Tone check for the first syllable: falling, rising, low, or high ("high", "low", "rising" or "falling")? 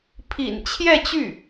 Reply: low